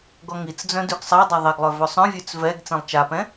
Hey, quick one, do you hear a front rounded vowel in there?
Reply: yes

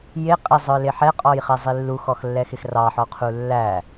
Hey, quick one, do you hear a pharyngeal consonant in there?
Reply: yes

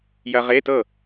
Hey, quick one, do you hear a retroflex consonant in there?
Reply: no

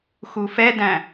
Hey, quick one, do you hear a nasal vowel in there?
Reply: yes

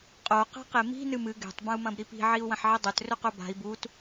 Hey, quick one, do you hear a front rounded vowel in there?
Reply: no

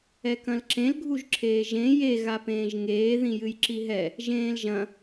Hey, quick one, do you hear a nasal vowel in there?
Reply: yes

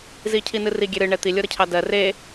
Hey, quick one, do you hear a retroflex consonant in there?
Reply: yes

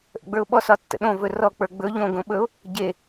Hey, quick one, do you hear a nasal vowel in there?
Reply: yes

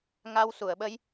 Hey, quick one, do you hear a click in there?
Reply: no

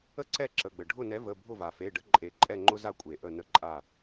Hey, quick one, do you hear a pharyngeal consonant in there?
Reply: no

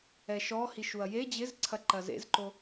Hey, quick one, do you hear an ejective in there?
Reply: no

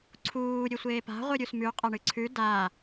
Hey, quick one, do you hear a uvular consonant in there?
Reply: yes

